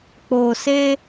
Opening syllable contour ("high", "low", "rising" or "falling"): low